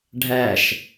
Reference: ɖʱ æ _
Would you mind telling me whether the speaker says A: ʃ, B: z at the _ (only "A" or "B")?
A